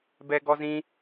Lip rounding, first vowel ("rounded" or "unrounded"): unrounded